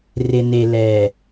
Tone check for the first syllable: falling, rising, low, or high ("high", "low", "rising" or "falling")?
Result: low